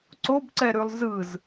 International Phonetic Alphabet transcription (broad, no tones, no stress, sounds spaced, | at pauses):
ǀ o b ǀ ɛ ɾ ʉ lˠ z ɯ z